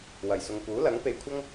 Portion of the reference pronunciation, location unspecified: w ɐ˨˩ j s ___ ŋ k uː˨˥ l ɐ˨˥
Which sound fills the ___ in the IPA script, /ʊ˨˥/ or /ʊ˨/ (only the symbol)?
ʊ˨